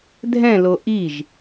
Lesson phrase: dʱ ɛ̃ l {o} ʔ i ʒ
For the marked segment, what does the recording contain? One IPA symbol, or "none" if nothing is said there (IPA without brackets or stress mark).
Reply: o